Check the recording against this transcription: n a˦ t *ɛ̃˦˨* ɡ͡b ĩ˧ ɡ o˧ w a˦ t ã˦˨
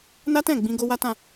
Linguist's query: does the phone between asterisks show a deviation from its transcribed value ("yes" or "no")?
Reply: no